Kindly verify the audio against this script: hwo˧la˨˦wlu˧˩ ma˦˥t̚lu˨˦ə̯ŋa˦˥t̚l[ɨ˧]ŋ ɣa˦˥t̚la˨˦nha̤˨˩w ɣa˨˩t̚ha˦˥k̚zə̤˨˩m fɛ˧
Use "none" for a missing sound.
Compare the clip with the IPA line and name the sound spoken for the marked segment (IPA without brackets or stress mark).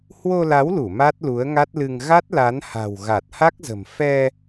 ɨ˧